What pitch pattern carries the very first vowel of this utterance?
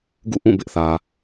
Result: falling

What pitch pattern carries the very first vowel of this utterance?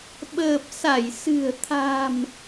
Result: low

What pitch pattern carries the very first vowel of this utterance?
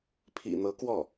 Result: low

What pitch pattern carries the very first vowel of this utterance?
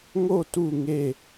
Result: falling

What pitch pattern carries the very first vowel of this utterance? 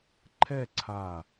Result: falling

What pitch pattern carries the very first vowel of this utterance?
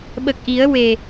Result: low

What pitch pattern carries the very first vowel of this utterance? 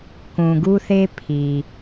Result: low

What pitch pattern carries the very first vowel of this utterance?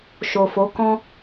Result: low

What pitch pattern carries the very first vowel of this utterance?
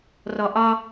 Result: low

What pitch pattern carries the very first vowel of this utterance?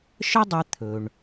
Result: high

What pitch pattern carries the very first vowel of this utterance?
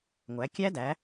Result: rising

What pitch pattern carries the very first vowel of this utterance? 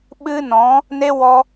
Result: high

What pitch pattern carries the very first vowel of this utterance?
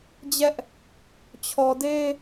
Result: high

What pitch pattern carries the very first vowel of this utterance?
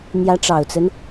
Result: rising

